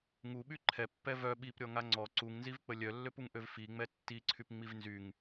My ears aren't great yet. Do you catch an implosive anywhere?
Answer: yes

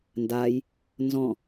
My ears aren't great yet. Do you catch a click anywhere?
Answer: no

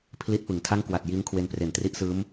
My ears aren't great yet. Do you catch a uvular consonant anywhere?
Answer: no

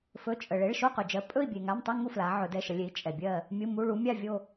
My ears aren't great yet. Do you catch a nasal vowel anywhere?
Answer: no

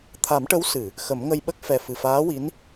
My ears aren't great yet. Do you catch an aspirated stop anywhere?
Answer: yes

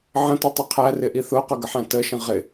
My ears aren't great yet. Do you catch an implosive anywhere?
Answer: no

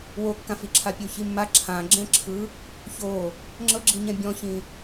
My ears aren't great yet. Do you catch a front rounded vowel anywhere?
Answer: no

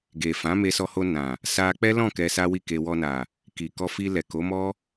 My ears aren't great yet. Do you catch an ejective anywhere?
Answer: no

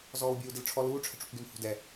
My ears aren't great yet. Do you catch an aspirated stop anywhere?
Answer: yes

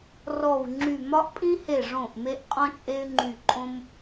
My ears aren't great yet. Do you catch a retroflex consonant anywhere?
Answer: yes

